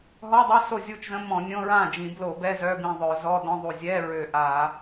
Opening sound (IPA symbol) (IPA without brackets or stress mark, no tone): ɦ